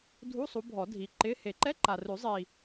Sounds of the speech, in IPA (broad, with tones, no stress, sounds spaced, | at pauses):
dʱ u˧˥˧ sˤ u˨˦ bʱ ɔ˨˩˦ dʱ i˨˦ ǃ ɪ˧˥˧ h e˨˩˦ ǃ ɛ˧˥˧ ǃ a˨ r ʉ˨˩˦ zˤ i˨